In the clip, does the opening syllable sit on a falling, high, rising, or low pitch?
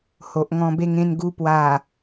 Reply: low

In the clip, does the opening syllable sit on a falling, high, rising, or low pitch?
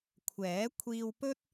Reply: rising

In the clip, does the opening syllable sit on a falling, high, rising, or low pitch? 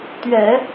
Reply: low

